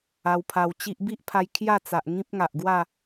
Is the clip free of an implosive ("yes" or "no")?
yes